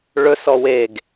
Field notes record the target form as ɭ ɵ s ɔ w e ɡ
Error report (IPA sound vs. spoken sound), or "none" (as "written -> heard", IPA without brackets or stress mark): none